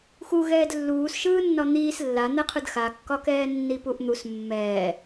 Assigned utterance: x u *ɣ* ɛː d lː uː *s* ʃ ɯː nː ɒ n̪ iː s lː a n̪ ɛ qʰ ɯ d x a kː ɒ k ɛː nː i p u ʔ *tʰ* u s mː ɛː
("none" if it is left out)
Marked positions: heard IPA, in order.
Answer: ɣ, s, n̪

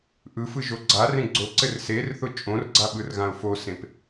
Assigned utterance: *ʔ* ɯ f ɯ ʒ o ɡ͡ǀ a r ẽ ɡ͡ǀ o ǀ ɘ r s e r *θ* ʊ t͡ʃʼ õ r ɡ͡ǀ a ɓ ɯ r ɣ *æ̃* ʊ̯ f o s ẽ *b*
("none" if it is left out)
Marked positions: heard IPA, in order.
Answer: ʔ, θ, ã, p

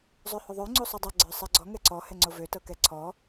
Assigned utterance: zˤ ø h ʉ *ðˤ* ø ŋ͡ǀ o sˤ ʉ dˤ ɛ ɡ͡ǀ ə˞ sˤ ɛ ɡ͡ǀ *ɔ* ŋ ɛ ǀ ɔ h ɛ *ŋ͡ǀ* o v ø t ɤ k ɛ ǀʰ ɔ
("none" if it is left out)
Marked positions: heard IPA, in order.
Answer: ðˤ, ɔ, ŋ͡ǀ

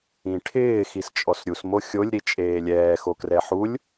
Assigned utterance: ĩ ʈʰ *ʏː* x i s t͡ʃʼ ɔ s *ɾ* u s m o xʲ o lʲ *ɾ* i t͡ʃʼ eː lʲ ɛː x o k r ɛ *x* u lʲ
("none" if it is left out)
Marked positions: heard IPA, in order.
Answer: ɪː, ɾʲ, ɾ, ħ

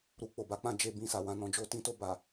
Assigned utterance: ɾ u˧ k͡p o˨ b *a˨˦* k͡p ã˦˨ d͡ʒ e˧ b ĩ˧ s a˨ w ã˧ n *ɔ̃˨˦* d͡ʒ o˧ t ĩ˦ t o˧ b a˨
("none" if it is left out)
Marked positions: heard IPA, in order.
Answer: a˨˦, ɔ̃˧

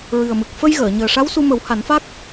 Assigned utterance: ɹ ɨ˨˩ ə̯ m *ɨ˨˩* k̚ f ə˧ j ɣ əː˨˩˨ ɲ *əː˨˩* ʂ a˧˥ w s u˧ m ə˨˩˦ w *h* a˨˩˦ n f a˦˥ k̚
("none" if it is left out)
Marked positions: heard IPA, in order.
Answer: ɨ˨˩, əː˨˩, h

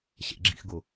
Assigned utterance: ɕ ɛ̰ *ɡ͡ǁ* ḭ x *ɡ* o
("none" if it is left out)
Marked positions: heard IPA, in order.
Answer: ɡ͡ǁ, ɡ

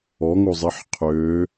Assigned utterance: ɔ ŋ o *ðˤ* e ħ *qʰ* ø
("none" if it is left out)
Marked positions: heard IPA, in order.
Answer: zˤ, qʰ

